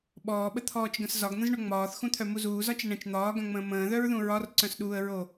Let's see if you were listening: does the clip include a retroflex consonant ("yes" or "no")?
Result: yes